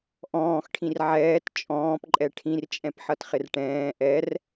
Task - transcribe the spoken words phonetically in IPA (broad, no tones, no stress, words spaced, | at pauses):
ʔɔ̃ːxʈʰĩr ʕɛːt t͡ʃʼɔ̃ːpǃʼɛ ʈʰĩrt͡ʃʼɛ̃pħʌtχɪr ʈɛ̃ː ʔɛr